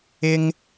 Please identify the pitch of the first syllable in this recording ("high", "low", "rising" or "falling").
high